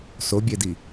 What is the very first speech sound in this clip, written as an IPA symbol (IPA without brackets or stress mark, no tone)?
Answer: s